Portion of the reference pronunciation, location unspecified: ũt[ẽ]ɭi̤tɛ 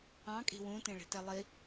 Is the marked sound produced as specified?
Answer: yes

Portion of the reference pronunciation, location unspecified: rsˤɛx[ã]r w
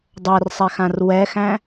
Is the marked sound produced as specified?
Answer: yes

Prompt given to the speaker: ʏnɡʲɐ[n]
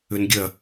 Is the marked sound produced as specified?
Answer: no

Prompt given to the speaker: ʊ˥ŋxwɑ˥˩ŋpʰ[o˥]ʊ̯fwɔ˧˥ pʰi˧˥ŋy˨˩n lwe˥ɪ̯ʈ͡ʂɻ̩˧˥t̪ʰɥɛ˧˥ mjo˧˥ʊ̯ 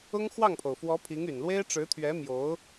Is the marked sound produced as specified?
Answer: no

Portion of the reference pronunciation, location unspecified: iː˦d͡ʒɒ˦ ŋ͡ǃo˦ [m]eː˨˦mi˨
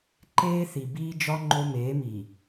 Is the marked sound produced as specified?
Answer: yes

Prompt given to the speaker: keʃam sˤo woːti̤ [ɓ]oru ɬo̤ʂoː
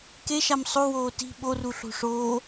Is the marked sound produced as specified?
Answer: yes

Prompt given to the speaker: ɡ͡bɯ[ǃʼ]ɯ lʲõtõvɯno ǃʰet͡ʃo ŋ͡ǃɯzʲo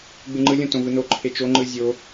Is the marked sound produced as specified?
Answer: no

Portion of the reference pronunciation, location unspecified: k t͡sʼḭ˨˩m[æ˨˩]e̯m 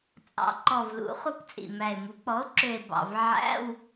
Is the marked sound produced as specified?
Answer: yes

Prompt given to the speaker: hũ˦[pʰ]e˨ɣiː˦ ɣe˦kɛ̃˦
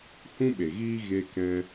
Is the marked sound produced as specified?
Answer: no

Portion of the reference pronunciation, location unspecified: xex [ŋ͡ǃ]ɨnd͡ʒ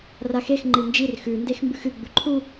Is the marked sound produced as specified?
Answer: yes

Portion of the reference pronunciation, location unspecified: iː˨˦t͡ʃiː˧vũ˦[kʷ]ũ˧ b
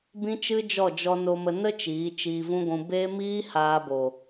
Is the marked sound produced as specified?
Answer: no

